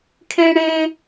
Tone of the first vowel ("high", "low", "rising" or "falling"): high